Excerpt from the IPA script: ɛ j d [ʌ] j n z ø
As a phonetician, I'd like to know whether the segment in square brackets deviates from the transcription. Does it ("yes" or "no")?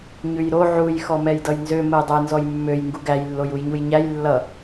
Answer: no